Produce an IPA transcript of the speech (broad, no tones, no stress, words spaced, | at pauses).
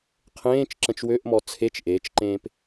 qʰẽːt͡ʃ ǁə̃t͡ʃwøʔmɔ t͡sʰet͡ʃ ʔeːt͡ʃǃẽːp